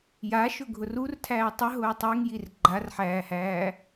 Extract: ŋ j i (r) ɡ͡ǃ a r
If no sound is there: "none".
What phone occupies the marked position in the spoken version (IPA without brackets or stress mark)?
r